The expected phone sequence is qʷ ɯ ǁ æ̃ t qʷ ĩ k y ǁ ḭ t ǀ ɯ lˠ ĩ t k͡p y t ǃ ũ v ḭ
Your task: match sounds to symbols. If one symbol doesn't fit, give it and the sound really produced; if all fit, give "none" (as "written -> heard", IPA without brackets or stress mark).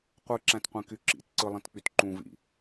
none